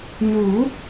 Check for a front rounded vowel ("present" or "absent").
absent